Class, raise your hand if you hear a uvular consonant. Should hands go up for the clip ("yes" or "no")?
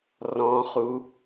yes